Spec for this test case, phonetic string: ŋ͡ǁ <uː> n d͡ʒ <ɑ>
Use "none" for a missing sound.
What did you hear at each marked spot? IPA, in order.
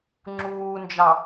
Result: uː, ɑ

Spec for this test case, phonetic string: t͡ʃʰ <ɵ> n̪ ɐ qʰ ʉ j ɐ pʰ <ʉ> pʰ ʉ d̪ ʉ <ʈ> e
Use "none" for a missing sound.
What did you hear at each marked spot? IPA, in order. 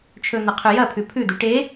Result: ɵ, ʉ, ʈ

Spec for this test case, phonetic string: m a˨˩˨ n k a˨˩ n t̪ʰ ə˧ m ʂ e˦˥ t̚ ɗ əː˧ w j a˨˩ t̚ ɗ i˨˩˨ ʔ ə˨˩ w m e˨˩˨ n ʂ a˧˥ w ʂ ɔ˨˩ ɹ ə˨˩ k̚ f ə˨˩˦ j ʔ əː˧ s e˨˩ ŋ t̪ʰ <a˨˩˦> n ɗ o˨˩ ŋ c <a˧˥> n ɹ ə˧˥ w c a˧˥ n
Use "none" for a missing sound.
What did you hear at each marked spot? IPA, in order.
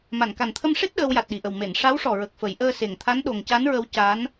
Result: a˧˥, a˧˥

